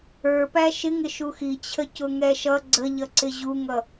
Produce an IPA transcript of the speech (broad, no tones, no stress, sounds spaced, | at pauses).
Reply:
ə˞ p æ ʃ ɪ ŋ ɪ ʃ u x i t͡ɕʰ ə c ʊ ŋ ɛ ʃ ʌ ɡ͡ǀ ə ʎ ʌ ǀ ɪ ʑ u ŋ ʌ